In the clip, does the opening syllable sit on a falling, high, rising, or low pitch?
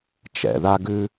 low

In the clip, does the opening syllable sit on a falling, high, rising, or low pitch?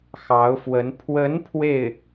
rising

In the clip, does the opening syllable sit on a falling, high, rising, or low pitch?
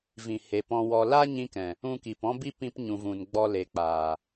low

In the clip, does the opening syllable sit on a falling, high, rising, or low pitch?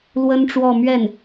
high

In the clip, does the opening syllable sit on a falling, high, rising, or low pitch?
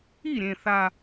falling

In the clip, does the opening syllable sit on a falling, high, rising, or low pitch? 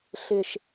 low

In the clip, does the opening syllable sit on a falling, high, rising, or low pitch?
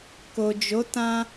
low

